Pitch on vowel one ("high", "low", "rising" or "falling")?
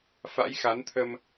rising